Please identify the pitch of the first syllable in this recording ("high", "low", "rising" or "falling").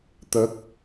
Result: rising